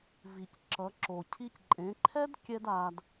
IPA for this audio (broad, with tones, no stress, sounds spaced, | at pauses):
v i˩ c ǁ ʌ˩˧ ǁ o˩ cʰ i˧ c ǃʼ ẽ˩˧ ǃʰ ɛ˥ d kʲ ɛ˥ d a˧ d